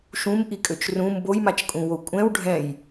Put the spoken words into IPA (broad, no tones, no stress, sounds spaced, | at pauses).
ʃ ũ m ʔ i kʼ ø t͡ʃ r ũ m b o j m a t͡ʃ kʼ ũ w o kʷʼ ɛ̃ w ɖʱ ɛ̃ j